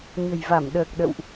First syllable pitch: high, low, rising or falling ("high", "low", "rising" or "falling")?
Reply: low